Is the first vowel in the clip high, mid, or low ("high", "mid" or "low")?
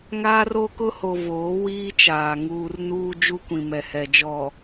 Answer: low